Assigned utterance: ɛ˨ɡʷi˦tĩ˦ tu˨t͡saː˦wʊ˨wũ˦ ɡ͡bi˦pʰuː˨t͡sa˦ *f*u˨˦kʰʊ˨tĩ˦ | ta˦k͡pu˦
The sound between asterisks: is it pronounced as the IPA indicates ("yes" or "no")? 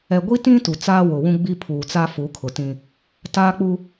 yes